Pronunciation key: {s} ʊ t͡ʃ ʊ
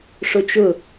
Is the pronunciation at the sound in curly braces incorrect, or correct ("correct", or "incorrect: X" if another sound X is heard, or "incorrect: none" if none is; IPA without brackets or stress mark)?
incorrect: ʂ